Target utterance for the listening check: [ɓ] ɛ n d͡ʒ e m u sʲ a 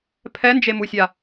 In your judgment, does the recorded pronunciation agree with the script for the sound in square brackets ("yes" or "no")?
no